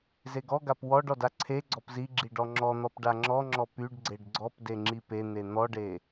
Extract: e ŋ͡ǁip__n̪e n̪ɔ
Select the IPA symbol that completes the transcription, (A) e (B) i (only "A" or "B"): A